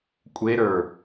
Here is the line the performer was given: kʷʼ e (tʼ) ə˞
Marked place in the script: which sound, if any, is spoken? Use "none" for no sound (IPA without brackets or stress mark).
ɾ